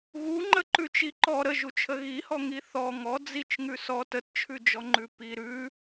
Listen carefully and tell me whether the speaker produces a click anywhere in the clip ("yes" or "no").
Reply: yes